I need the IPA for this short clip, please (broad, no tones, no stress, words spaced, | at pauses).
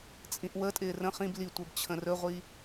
t͡sʼĩʔwətʼɪː rə̃ χĩb litʷə˞b t͡ɕʰə̃rɵʁʷi